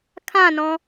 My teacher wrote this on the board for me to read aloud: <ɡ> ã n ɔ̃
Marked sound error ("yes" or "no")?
yes